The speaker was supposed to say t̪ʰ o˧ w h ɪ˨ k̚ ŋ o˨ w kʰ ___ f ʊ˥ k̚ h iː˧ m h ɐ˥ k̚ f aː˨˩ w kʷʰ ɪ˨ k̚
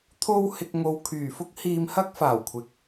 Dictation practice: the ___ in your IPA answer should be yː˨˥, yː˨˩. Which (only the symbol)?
yː˨˩